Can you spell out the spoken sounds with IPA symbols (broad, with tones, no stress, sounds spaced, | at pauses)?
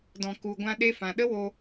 d ɔ̃˨ k u˨ ɡʷ ã˧ ɗ e˧ f ã˨ ɗ ə˦ w o˧